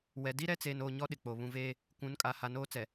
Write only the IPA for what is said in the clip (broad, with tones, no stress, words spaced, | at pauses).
wɛ˨ di˦ɾɛ˦t͡seː˨noː˨ ɲɔ˦ ɗɪ˨k͡po˨ βũ˨veː˦ | kʷũ˨˦nkʼa˨ ha˨noː˦t͡sɛ˨